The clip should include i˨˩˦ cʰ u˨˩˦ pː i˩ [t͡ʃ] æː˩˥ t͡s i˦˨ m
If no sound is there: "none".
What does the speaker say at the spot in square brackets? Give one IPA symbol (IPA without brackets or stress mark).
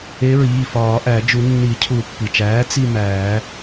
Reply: t͡ʃ